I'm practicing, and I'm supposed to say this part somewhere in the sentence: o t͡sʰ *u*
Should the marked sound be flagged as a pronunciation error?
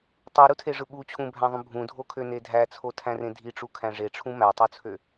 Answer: yes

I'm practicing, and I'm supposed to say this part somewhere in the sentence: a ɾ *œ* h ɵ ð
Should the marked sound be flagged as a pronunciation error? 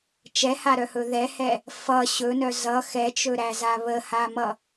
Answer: no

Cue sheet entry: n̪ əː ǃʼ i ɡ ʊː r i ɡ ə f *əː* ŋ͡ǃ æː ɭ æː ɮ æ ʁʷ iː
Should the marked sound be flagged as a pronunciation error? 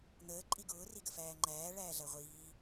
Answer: yes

